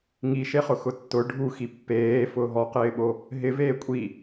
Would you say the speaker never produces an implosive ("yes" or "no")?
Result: no